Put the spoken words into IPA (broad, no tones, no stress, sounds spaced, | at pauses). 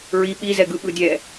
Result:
ɹ i ɓ i z ɛ ɡ ɯ ɓ ɯ dʲ ɛ